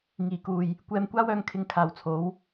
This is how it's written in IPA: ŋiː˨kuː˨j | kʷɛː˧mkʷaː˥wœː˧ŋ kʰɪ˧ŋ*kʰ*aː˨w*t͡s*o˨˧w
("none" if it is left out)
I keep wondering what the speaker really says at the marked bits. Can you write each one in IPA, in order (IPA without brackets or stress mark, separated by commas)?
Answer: kʰ, t͡sʰ